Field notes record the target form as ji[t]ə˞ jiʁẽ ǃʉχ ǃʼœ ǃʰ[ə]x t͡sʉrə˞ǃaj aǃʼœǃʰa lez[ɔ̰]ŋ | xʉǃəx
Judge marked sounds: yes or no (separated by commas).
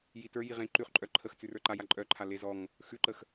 yes, yes, no